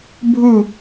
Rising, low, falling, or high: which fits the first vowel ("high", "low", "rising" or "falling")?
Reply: falling